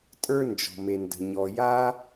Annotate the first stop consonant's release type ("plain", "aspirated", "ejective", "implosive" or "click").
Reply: ejective